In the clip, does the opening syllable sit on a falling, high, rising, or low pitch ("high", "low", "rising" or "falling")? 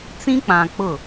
high